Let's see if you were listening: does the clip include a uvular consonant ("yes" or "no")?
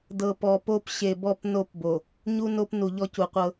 yes